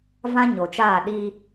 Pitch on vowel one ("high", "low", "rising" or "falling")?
high